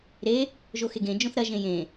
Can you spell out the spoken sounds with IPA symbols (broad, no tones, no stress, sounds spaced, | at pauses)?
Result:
ɾ e | ʒ o x e ɡ ẽ d͡ʒ õ θ ɾ ɐ ʒ ẽ j ẽ